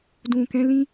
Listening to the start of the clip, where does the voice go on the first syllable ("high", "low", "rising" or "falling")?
low